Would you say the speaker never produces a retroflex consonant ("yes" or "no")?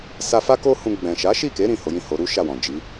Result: yes